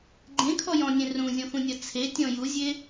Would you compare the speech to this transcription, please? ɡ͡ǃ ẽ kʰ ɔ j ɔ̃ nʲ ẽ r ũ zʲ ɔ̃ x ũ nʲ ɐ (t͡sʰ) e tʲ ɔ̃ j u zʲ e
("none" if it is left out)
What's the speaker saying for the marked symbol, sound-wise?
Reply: t͡sʰ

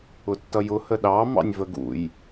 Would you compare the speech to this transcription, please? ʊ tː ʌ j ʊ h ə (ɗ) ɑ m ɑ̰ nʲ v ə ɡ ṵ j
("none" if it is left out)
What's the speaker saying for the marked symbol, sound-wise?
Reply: ɗ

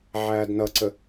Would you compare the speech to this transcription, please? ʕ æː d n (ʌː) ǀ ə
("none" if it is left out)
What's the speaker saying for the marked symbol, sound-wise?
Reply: ʌ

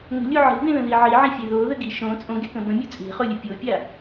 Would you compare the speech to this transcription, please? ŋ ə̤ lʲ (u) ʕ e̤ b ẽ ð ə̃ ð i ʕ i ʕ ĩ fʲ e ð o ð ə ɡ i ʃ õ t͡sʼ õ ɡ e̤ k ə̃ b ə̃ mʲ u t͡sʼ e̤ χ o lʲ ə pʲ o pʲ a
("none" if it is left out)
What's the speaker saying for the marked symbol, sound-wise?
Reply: u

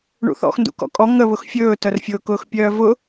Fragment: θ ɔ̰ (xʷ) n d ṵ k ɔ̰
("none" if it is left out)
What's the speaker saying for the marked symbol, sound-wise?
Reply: x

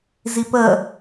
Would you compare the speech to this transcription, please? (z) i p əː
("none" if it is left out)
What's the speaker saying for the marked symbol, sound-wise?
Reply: z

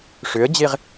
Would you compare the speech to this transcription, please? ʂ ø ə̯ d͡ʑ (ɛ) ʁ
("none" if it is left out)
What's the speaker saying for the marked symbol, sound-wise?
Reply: e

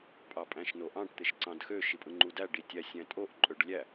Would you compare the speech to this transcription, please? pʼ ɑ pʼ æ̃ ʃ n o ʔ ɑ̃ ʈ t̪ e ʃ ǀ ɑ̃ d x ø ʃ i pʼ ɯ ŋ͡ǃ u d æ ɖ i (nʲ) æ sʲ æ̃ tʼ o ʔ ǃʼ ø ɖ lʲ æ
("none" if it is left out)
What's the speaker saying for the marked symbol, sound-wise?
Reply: tʲ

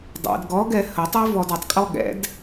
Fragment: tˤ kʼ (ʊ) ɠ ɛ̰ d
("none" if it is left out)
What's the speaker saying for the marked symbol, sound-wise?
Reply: ɔ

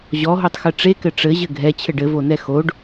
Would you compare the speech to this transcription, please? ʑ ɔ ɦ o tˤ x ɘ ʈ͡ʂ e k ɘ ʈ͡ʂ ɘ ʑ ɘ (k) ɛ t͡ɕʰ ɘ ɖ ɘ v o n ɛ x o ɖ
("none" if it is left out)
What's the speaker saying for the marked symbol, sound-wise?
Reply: ɡʱ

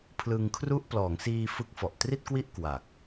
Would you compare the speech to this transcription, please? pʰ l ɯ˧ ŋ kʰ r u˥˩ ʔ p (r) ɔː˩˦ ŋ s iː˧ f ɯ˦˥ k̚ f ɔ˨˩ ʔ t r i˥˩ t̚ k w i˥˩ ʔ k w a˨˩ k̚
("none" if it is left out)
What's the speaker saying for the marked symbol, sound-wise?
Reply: l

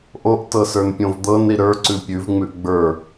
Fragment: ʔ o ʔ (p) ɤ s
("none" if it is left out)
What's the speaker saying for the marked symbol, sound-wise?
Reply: t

